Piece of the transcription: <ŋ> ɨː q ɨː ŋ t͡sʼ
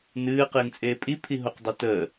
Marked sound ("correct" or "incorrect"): incorrect